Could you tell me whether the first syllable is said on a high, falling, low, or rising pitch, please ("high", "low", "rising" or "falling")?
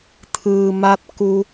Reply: low